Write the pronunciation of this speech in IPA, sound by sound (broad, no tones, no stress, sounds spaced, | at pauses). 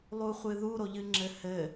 lˠ u χʷ ɨ ð u ɾ o ʎ ɨ ŋ͡ǁ ɘ h ɘ